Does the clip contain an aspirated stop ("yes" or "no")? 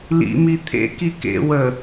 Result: yes